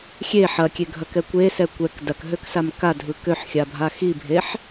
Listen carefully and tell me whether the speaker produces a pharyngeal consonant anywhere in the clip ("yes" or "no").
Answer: yes